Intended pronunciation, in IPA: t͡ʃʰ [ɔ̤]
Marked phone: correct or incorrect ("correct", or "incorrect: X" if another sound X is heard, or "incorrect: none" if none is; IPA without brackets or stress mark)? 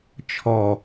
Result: incorrect: ɔ